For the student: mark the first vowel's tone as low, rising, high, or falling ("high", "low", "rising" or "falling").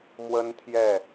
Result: high